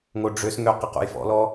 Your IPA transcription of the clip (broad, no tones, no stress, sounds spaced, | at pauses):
ŋ o ɖ͡ʐ ø s ŋ ø q ə q o̰ j f ɔ̰ l ɔ